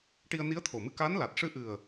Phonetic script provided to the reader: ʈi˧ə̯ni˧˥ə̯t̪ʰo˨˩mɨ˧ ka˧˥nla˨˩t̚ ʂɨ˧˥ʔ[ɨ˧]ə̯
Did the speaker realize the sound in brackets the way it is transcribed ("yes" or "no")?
no